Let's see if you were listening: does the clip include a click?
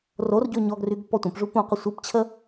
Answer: no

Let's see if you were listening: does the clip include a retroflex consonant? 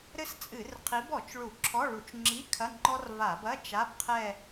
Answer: yes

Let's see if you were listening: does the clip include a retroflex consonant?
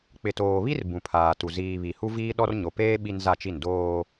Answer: no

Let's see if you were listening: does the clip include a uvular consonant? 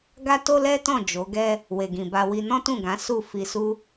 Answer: no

